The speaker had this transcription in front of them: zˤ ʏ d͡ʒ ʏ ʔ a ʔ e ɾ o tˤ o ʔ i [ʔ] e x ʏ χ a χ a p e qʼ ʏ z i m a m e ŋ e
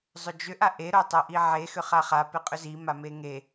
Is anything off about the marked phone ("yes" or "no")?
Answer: yes